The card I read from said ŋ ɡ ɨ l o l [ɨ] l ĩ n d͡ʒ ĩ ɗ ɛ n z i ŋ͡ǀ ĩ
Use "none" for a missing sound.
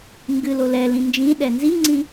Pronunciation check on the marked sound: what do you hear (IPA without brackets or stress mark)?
ɛ